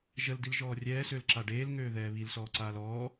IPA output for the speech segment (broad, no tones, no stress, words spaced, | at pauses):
ʒəldilʒɔː rʲɛːsølǁa ɖeːlŋøːðɛː βilsɔːǀaːl ɔː